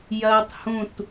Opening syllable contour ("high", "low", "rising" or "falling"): high